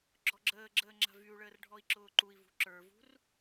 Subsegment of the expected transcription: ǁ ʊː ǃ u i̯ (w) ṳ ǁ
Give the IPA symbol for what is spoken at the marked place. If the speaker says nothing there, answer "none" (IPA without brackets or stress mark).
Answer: v